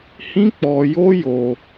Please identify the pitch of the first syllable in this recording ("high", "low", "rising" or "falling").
high